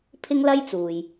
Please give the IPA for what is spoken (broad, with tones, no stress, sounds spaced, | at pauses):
pʰ ɪ˥ ŋ l ɐ˥ j t͡s uː˨ j